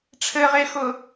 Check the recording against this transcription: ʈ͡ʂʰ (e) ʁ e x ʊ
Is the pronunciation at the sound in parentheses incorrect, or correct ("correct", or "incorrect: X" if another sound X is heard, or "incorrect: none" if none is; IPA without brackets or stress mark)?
incorrect: ɘ